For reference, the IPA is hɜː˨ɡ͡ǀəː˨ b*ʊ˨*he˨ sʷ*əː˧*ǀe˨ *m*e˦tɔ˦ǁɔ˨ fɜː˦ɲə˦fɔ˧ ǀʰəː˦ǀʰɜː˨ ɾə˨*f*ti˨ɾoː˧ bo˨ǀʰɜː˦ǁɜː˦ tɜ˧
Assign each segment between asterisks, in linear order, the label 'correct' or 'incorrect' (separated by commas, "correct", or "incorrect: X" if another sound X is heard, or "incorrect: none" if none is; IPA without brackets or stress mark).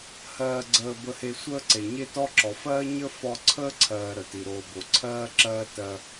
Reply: incorrect: ə˨, incorrect: əː˦, incorrect: ɲ, incorrect: none